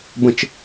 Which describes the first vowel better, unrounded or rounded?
unrounded